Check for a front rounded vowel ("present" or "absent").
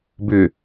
present